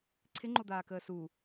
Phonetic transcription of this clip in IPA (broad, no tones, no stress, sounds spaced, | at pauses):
ǀʰ ɪ ŋ͡ǃ o d̪ aː k əː s u